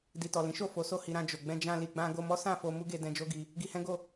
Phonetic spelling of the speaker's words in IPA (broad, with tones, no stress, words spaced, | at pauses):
di˨tɔ˨lĩ˨˦ʃo˦˨ fo˨˦ so˦˨hi˧ɾã˧ d͡ʒo˨ ɡ͡bɛ̃˧d͡ʒã˧ li˧ɡ͡bã˦ ɡo˧mɔ˦sã˦˨fo˧ mu˦ɡe˧dɛ̃˧ d͡ʒo˦ɡi˧ | ɡi˧hɛ̃˦ɡo˦˨